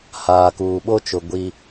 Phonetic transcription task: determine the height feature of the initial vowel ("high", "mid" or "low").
low